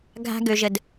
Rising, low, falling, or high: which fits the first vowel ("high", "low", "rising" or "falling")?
high